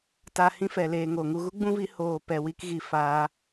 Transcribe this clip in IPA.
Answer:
t a˧ h ĩ˦ f ɛ˨ l eː˨ ŋ o˨ ŋ u˧ ɣ u˦ ɡ͡b ũ˦ v i˨˦ h oː˧ p ɛ˧ w i˦ k ɣ i˧ f aː˦

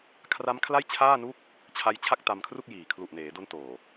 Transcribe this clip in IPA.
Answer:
kʰ r a˦˥ m kʰ l a˥˩ j t͡ɕʰ aː˥˩ n u˥˩ k̚ | t͡ɕʰ a˦˥ j t͡ɕʰ a˥˩ k̚ t a˧ m kʰ r u˥˩ k̚ j iː˨˩ kʰ l u˨˩ ʔ n eː˩˦ d o˦˥ n t oː˨˩

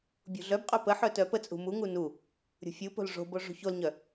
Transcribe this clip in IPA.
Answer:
bʲ ṳ ɮ œ b qʼ œ p ə ħ œ t œ p ə t͡sʼ ṳ m u ŋ u n u | ɾʲ ṳ fʲ u p o̤ l ʐ o̤ b o ʐ ṳ ç o l ɲ œ

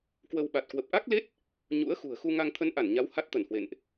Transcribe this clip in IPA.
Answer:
k w ə˧ w ɓ a˨˩ t̚ k w ə˨˩ p̚ ʔ a˦˥ k̚ l e˦˥ t̚ | ɲ ṵ˧˥ ə̯ x ṳ˨˩ ə̯ x u˧ ŋ a˧ ŋ t̪ʰ ə˧ n ʔ a˧˩ n ɲ a˨˦ w h a˦˥ t̚ t̪ ə˧˩ n h w ḛ˧˨ n ʔ

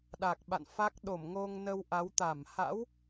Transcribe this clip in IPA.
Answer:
ɗ a˨˩ k̚ ɓ a̰˧˨ n f a˦˥ k̚ ɗ o˧˩ m ŋ o˧ ŋ n ə˧ w ʔ a˨˦ w t̪ a˧˩ m h a̰˧˥ w

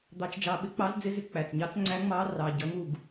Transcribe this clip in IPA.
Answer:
d̪ ɑ˧ t͡ʃ d͡ʒ ɑ˧ ɓ ɪ˧˥ k͡p ɑ˧˥ z d͡z ɪ˧˥ z ɪ˧˥ k͡p æ˩˧˩ t͡s ɲ ɑ˧˥ t͡s ŋ͡ǀ æ˧˥ ŋ͡m ɑ˧˥ r ɑ˩˧˩ ɟ ʌ˧˥ ŋ u˩˧˩ ɡ

